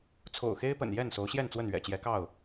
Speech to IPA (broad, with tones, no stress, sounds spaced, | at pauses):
t͡sʰ o̰˨˩ ʊ̯ x e˦ ɪ̯ p ə̰˨˩ n j ɛ˥˨ n s o˨˦ ʊ̯ ɕ j ɛ˥˨ n t͡s w ə˥˨ n ɥ ɛ̰˨˩ t͡ɕ j ɛ˨˦ k ɑ˥˨ ʊ̯